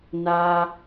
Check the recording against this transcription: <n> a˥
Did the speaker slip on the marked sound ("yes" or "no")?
no